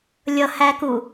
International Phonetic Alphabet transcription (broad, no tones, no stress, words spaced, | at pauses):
lʲʌhæku